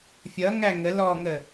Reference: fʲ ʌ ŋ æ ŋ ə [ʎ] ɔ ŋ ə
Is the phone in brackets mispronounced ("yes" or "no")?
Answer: yes